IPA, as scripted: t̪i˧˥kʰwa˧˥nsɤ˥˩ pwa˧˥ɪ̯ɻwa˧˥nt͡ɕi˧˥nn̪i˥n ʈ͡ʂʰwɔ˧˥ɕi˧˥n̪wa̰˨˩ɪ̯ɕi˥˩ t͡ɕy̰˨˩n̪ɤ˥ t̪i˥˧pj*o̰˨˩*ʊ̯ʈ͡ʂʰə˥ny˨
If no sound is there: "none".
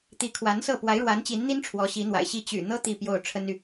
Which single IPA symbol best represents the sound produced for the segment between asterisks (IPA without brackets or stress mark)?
o˥˩